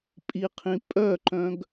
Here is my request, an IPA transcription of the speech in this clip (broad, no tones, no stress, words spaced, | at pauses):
pʼiqʰĩ pʼœǃœ̃ɡ